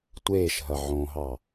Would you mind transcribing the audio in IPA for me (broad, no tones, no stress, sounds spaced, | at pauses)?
tʷ eː ʃ ɦ ɐ ʕ õ ɦ ɑ